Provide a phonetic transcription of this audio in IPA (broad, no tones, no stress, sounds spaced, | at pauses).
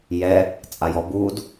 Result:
j ɛ | t͡sʼ a j ɔ b u d